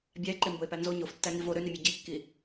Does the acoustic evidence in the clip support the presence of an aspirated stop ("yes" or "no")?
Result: no